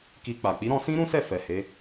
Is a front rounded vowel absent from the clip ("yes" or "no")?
yes